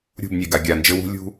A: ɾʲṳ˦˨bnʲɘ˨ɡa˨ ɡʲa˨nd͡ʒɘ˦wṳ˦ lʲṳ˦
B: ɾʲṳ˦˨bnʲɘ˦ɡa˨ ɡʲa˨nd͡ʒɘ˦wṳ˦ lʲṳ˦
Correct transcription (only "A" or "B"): A